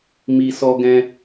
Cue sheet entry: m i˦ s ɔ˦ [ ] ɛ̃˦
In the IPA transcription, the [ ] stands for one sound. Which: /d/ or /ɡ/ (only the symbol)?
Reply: ɡ